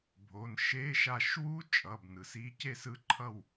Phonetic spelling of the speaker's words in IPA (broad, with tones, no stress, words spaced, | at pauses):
bʱo˩˧˩nʃe˧˥˧ʃ a˧˩ʃwu˦˥ t͡ʃʼʌ˩˧˩bnɯ˩si˨˦ ce˧˩sɯ˨˦ǃʰʌ˧˩w